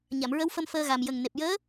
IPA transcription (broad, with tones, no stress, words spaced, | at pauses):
ɲa˨˩˨mɹə˧˥wfə˧m fəː˧ɣa˨˩m jə˨˩ŋne˨˩p̚ jəː˧˥